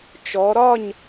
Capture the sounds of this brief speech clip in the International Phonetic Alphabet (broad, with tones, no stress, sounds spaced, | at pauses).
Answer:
t͡ʃ ɔ˩˧ ɾ ɒ˥˨ ɲ